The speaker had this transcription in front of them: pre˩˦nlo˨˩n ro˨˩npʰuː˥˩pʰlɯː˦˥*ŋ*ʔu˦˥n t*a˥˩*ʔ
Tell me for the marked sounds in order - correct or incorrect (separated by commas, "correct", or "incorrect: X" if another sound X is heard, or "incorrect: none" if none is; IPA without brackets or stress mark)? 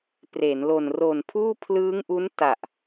correct, incorrect: a˨˩